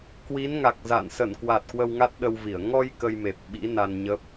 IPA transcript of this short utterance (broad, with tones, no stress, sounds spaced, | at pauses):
k w i˨˦ n ŋ a˨˩ k̚ z a̰˧˨ n s ə˧˩ n k w a˨˩ t̚ k w ə˧ w ŋ a˦˥ t̚ ɗ ə˧ w v i˧˩ ə̯ ŋ ɔ˧ j k ə˧ j m e˨˩ p̚ ɓ ḭ˧˥ n a˧ n ɲ ə˦˥ p̚